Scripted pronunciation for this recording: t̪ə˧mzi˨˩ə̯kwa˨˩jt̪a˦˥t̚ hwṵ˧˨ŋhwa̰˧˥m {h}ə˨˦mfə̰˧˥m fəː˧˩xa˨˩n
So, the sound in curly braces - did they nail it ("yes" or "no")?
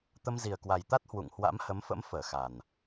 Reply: yes